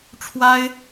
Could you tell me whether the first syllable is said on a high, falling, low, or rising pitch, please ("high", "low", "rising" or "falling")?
high